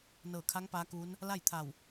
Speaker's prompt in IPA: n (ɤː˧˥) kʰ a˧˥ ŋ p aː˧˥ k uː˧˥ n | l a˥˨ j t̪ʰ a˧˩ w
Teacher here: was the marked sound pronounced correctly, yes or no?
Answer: no